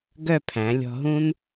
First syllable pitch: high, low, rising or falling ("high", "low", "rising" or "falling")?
falling